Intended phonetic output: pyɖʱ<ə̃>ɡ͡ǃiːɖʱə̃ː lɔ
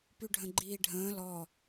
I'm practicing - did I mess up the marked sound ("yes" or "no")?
no